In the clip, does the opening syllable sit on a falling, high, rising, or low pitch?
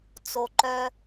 low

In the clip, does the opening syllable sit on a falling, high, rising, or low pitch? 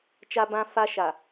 high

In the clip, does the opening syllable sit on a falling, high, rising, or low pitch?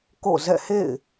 falling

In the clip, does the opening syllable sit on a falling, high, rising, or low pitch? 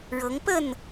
rising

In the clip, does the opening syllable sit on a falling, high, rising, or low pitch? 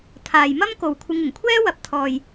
low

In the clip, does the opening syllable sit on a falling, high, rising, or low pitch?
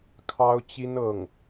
high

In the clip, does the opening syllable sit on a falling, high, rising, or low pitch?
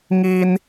high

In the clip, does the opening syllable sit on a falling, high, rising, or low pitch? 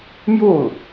falling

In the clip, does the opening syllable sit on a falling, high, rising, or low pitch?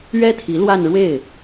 high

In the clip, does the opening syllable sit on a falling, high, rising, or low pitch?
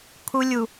high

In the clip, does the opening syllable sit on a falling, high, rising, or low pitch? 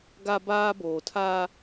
high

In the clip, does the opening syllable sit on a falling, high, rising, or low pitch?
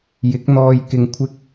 rising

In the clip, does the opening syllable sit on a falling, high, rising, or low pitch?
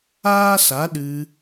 high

